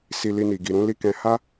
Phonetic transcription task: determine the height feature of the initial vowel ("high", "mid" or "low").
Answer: high